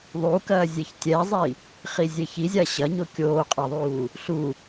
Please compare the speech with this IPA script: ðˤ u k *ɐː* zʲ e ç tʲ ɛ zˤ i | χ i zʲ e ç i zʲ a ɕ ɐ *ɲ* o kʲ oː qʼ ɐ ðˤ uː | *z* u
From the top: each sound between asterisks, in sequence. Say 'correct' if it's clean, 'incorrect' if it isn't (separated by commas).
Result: correct, correct, incorrect